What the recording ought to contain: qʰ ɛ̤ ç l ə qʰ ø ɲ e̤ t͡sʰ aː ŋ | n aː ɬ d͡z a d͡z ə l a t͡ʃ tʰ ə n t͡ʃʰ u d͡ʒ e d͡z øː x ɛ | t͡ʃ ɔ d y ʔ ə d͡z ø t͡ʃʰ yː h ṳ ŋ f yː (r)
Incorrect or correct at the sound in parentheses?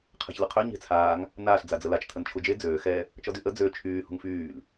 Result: incorrect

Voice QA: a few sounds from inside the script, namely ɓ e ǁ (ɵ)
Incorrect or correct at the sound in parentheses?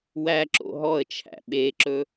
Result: correct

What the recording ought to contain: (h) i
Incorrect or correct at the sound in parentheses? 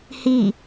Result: correct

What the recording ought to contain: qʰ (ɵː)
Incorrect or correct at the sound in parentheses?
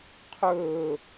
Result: correct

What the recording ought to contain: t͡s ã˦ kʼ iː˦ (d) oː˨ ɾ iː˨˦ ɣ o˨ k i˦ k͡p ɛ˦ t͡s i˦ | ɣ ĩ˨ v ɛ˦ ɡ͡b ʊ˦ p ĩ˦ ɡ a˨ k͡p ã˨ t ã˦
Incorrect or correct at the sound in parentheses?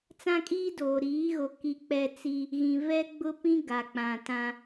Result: correct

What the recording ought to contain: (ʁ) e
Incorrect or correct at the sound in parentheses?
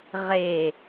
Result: correct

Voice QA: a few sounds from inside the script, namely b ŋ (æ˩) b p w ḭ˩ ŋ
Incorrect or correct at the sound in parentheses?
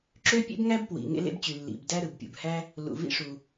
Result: incorrect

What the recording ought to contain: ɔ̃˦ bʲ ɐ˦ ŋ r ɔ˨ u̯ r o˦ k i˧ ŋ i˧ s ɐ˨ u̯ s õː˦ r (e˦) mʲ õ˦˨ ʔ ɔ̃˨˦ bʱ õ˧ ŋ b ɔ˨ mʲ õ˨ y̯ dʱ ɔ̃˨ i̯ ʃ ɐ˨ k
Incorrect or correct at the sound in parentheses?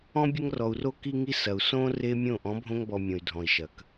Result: correct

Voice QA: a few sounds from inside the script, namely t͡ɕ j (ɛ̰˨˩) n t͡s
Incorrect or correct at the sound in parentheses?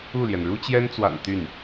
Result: incorrect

